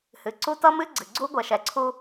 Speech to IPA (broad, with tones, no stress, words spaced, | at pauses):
hɨ˨ǀu˦ tʌ˦mɨ˦ɡ͡ǀɨ˨ɡ͡ǀu˦ ɡʷɛ˨ʃɛ˨ǀʰu˦